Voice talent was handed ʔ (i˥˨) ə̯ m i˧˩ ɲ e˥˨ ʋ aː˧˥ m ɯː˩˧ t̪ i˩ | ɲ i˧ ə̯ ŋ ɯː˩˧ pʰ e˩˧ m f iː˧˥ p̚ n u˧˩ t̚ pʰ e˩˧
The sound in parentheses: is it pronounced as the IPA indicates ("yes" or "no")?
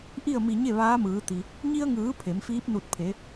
yes